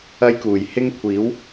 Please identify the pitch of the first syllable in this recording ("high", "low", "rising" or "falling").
high